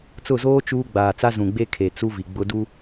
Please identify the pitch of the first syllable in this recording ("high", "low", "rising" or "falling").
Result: falling